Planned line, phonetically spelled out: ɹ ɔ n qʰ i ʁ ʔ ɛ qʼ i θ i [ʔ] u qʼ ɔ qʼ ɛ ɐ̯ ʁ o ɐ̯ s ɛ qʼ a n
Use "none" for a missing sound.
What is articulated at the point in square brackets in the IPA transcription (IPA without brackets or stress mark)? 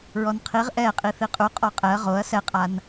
qʼ